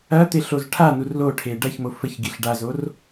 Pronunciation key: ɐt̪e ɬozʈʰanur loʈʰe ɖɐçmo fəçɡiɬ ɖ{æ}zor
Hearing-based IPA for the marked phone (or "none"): a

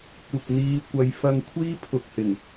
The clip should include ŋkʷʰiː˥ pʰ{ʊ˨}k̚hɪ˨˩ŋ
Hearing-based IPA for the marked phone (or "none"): ʊ˨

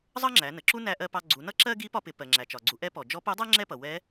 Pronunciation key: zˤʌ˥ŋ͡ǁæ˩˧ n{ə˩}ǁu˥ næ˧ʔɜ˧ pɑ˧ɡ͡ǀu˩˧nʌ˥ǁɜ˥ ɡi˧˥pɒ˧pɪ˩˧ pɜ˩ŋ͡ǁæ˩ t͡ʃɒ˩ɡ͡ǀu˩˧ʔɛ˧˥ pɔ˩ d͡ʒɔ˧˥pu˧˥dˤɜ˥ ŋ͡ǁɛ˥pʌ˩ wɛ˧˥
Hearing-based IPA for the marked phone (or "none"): ə˩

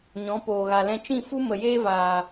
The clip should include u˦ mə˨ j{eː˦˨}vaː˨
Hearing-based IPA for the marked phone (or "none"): eː˦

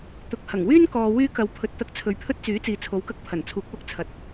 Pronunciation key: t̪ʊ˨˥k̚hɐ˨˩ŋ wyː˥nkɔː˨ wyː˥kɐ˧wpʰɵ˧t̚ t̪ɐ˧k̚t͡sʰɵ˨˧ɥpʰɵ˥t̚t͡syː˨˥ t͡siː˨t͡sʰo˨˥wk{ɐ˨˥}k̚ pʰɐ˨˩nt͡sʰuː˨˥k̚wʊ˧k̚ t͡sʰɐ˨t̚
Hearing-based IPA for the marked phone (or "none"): ɐ˧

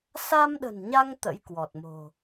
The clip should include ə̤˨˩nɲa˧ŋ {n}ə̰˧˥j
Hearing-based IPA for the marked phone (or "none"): t̪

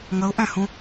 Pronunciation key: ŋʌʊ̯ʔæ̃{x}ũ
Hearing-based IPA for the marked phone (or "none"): h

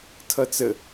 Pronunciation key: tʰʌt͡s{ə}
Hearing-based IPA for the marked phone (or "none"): ə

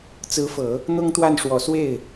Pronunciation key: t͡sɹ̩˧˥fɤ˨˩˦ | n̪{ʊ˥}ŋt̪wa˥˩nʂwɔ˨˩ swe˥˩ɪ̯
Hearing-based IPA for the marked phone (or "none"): ʊ˥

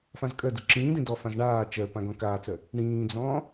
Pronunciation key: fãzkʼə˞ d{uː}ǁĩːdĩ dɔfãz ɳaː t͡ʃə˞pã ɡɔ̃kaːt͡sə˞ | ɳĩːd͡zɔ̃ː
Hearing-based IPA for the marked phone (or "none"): u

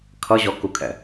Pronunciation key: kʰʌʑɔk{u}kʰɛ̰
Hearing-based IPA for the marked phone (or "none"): u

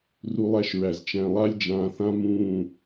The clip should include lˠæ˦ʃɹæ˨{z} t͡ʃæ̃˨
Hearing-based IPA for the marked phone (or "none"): z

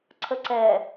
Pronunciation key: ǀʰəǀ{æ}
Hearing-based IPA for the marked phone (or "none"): ɛ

